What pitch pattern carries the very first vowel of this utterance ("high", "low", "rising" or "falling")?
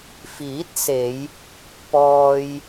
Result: rising